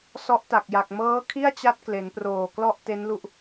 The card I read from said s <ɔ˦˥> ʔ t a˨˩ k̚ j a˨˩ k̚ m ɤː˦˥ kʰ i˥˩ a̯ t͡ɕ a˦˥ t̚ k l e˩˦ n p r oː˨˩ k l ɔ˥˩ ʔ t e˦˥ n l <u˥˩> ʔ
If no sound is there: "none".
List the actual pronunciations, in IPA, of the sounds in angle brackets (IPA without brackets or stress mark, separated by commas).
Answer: ɔ˦˥, u˥˩